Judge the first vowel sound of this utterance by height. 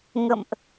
mid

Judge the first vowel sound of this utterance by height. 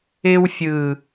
high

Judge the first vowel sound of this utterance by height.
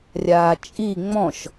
low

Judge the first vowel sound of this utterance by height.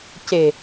mid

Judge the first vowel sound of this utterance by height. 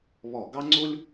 mid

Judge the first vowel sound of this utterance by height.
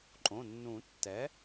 mid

